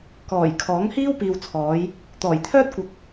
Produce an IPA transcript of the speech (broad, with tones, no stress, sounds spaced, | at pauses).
k ɔː˨˩ j kʰ ɔː˨˥ ŋ h iː˥ w p iː˨ w t͡sʰ ɔː˨˧ j | t̪ ɔː˨˩ j t̪ʰ œː˥ t̚ kʷ ɐ˨ k̚